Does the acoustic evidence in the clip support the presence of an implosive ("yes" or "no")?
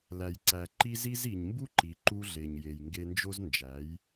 no